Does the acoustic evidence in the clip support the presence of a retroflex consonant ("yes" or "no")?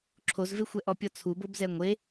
no